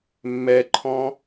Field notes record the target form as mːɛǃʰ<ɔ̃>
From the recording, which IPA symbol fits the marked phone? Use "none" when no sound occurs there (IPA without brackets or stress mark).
ɔ̃